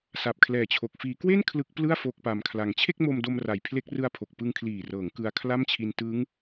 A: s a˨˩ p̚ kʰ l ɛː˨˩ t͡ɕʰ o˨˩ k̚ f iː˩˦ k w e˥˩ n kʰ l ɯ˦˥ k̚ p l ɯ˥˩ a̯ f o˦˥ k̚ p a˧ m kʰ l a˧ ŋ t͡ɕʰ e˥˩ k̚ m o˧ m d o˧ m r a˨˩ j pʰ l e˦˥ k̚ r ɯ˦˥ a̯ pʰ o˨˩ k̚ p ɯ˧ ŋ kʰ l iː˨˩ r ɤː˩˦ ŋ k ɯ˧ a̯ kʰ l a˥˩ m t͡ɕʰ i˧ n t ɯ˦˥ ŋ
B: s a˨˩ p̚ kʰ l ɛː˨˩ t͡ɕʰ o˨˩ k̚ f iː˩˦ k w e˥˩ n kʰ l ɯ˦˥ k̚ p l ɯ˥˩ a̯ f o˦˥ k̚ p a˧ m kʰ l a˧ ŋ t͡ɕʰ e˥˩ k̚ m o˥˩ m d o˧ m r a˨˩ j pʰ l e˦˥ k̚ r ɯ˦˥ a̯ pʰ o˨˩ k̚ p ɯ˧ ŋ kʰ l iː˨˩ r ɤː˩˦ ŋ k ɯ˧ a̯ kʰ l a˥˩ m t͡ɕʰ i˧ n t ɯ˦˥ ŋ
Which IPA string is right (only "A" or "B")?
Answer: A